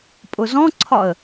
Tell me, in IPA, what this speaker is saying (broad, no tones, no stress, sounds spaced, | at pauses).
pʼ ʊ z ɔ̃ ǀʰ ɒ ə̯